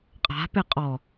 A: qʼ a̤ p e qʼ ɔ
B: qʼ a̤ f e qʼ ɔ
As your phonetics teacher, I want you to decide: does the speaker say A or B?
A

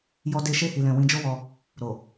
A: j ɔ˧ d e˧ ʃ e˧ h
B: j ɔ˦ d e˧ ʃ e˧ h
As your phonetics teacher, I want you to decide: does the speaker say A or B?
A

